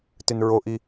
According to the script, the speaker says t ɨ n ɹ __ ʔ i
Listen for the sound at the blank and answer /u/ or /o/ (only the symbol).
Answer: o